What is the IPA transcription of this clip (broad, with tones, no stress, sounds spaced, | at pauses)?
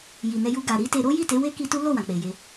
j i˨ n ɛ˧ j u˧ ɡ a˨ ɾ i˧ t e˧ ɾ o˦ j i˦˨ t e˨˦ w e˦ k i˧ t u˦ l o˦˨ w ã˨ k͡p e˨ j e˧